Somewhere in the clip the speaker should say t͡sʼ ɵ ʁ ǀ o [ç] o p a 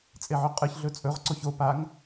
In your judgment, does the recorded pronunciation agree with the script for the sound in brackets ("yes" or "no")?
yes